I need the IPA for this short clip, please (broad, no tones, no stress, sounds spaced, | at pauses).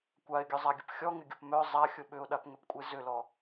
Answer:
kʷ a ɪ̯ ɡʲ œ zˤ a ɡʲ ə p xʲ ɔ ŋ ɪ ɡʲ ʊ p m œ zˤ a xʲ ʊ ɓ ʏ ʊ̯ ɗ a p ŋ ʏ p kʷʼ e z ʏ l ɔ